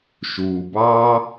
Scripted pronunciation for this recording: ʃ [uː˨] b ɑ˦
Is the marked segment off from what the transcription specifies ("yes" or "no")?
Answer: no